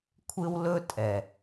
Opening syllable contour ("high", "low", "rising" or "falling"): high